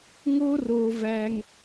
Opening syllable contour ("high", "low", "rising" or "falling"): high